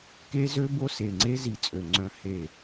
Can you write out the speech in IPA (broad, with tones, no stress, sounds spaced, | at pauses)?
k e˦ z ø˦ b o˦ s e˨ ŋ͡ǀ e˦ z i˨ t͡sʼ ø˨ ŋ͡ǀ œ̃˦ h e˦˨